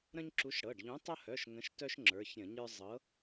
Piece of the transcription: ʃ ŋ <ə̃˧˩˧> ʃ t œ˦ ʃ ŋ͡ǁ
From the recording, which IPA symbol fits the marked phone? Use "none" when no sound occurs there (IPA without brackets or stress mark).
ə̃˨˥